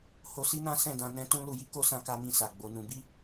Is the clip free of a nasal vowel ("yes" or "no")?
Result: no